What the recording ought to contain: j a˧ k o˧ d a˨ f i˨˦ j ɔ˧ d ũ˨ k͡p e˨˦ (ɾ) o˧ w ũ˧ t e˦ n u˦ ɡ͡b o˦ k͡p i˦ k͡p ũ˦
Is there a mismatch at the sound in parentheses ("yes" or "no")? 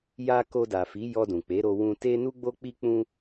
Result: no